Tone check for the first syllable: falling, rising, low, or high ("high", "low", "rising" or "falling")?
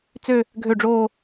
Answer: falling